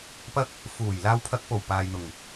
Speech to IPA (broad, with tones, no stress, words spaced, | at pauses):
pɐ˥k̚ | fuː˨˩j laː˧wpʰɐ˧k̚po˨˩w paː˨jn̪ʊ˨˩ŋ